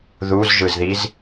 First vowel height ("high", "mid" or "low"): high